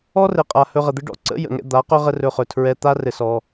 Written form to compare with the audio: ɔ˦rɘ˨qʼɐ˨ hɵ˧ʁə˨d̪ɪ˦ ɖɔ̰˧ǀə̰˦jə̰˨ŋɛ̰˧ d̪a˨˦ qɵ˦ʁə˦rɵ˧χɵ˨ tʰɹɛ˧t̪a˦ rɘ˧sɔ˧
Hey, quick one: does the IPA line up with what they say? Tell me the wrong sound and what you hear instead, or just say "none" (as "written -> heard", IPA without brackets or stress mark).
ɐ˨ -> a˨